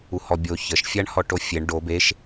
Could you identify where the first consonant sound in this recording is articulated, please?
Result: glottal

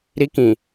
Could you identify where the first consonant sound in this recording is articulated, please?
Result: alveolar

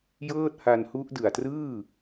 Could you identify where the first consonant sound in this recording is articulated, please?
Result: palatal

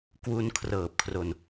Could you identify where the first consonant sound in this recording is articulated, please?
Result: velar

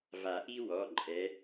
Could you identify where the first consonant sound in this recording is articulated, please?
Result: labial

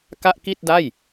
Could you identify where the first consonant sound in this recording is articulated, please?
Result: velar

